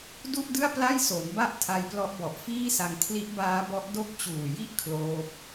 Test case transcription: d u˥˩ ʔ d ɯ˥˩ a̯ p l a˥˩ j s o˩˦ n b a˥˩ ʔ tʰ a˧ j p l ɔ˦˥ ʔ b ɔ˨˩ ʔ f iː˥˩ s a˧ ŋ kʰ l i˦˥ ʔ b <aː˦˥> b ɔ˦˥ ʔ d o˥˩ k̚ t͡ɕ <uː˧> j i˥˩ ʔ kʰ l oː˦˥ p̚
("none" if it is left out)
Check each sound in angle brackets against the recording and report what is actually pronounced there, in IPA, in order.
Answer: aː˦˥, uː˨˩

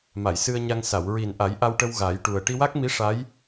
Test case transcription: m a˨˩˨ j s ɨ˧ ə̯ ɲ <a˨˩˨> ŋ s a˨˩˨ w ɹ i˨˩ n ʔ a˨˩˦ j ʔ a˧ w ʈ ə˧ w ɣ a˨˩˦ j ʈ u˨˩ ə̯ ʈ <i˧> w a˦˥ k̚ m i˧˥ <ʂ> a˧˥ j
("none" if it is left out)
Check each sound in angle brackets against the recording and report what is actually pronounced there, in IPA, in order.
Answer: a˧, i˧, ʂ

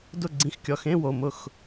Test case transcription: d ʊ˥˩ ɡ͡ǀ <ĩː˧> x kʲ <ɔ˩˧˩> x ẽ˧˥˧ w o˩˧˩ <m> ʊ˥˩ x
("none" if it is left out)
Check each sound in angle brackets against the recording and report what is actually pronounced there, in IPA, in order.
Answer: ĩ˧, ɔ˩˧˩, m

